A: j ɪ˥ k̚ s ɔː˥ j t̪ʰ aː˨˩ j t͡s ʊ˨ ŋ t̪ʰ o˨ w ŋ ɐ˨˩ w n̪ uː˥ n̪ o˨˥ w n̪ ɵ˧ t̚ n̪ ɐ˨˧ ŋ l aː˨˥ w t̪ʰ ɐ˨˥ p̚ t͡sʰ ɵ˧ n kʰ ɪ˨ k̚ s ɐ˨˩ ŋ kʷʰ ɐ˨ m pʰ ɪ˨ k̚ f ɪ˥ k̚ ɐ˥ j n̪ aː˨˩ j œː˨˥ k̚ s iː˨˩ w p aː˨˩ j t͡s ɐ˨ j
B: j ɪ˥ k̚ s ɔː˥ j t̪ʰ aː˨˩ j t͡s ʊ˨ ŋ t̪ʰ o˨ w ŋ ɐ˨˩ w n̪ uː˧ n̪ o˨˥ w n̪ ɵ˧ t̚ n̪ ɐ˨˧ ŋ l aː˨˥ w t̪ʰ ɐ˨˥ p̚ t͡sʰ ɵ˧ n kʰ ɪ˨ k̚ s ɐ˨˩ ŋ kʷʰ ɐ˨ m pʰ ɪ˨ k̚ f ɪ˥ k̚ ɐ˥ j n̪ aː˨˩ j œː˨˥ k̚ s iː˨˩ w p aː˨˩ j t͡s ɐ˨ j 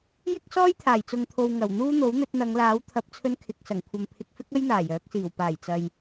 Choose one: A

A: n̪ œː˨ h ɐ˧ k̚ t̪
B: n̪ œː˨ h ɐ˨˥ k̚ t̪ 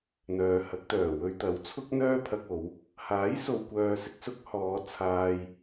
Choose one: B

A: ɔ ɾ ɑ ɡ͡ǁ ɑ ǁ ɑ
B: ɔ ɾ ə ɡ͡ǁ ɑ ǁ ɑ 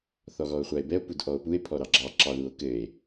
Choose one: A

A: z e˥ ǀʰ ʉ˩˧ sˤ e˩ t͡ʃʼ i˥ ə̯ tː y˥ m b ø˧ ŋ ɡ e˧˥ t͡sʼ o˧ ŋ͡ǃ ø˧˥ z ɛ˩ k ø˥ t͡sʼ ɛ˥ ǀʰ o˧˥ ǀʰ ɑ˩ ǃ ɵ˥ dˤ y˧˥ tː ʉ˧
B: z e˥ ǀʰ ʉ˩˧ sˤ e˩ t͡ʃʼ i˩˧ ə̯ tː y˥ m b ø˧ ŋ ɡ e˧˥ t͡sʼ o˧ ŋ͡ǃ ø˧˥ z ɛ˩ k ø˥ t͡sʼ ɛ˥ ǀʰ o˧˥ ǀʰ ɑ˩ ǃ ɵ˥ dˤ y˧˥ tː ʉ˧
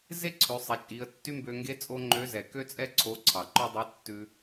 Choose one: B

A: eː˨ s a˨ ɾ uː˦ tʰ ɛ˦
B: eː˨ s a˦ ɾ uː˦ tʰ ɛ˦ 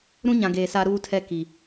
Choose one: B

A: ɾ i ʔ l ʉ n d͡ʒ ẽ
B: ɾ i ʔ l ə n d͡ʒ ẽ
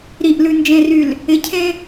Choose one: A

